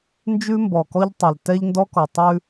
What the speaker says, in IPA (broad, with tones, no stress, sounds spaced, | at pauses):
n d͡ʒ ʉ˦ m b ɔ˨ k ɔ˦ ʎ tˤ ɛ˨ l t ɛ˦ ʎ n d ɔ˦ k ɔ˨ tˤ ʉ˦